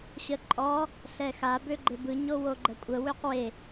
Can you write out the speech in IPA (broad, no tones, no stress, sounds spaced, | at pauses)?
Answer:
ɕ ə ǃʼ ɔ | ɬ ɛ x a b ø ɡ͡ǃ e b ɯ ɲ o w o ɡ͡ǃ ə kʷʼ ə w ø q w e